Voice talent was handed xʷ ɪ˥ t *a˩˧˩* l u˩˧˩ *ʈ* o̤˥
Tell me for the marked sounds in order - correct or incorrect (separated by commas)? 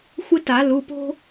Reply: incorrect, incorrect